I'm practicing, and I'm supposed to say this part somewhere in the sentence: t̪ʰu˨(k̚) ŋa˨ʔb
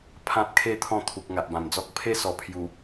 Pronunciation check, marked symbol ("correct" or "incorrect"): correct